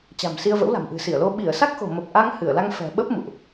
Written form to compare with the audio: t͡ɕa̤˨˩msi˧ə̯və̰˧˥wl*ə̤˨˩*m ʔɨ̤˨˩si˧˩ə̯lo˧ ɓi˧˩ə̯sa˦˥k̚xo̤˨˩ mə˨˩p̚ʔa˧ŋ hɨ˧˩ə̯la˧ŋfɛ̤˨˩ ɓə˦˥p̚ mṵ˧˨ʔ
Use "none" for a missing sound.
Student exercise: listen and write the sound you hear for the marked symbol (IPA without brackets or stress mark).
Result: a̤˨˩